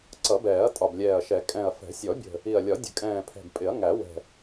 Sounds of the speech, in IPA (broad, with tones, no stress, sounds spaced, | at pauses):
ǀ ʌ˨˩˦ b ɛː˨˩˦ ɐ̯ tʼ ɒ˨˩ b lʲ ɛː˨˩ ɐ̯ ʃ ɛ˨˩˦ kʼ ɛ̃˨˩ ɐ̯ f ɛ̤˨˩˦ sʲ ɔ˨˩˦ bʲ ə̤˨˩ | i˨˩ ɐ̯ lʲ ɒ˨˩˦ dʲ ə̤˨˩˦ kʼ ɛ̃ː˨˩ pʰ ɛ̤˨˩ b pʼ ɪ˨˩˦ ɐ̯ ŋ æ˨˩˦ w ɛ̤˨˩